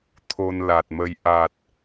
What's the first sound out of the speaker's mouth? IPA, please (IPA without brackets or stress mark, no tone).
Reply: t̪ʰ